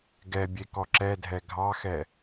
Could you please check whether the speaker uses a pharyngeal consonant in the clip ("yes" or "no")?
no